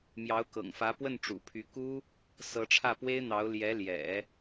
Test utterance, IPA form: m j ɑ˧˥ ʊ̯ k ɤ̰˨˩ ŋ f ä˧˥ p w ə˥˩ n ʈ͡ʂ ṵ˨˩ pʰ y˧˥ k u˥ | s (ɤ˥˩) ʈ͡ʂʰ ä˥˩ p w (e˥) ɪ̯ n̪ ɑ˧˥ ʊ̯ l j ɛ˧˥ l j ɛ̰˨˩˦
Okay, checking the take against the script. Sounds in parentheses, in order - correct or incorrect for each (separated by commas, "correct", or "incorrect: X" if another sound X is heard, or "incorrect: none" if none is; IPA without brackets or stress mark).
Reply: incorrect: ɤ˧˥, correct